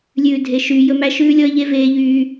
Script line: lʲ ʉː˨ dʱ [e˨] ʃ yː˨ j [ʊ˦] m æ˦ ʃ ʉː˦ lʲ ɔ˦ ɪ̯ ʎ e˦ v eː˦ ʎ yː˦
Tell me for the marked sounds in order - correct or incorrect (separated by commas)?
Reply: correct, incorrect